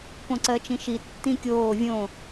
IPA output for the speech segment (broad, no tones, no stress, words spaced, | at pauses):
põǀɜt͡ʃĩʃi tːĩkʲoː vʲõ